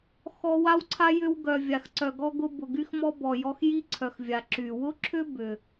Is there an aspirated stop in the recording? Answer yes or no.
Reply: yes